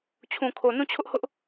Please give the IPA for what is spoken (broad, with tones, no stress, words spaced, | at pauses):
t͡ɕʰũ˨kʰo˨ nũ˦˨t͡ɕʰʊ˦ʔhʊ˦ʔ